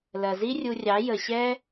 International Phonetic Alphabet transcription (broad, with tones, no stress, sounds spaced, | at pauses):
l ɜ˨ z i˦ rʲ u˧ rʲ ɑ˨˦ j ə˨ ɕ ɛ˦